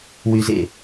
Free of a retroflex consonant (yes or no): yes